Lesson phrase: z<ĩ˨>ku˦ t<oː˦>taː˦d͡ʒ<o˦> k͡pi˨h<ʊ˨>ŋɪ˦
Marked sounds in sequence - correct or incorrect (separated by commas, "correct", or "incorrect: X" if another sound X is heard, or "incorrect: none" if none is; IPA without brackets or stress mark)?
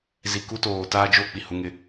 incorrect: i˨, incorrect: oː˨, correct, incorrect: ʊ˦